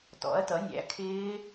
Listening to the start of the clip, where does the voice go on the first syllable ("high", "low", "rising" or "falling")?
rising